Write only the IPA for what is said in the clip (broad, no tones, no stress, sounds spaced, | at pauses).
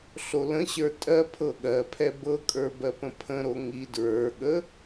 ɬ o l ə̃ ɕ ə˞ tʼ ɜ pʰ ɤ ɠ ɜ pʰ ɛ b ɤ kʼ ə˞ b ɜ p ə̃ pʰ ə̃ ɾ o ŋ i d ɹ ə˞ ɠ ə